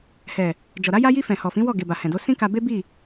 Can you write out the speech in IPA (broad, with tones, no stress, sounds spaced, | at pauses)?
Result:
h ɛ˨ | d͡ʒ ɔ˨ ɾ a˧ j a˧ j i˧ f ɛ̃˨ h ɔ˨ f ĩ˨˦ w ɔ˦˨ ɡ e˨ b a˨ h ɛ̃˨ d o˧ s ĩ˦ k a˧ b e˦ b i˦˨